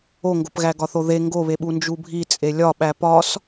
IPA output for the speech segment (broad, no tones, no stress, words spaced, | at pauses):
oŋɡopɣæ ɡɒθoðe ŋɡoβeɓu nd͡ʒubʱi t͡sʼelʲɒɓæ pɒs